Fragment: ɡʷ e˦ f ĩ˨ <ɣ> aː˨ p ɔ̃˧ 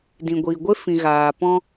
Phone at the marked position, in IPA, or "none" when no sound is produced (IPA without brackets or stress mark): ɣ